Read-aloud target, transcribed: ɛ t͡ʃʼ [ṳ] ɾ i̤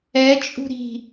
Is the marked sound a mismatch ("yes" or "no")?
no